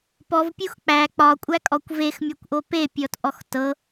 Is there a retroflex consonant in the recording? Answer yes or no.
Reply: no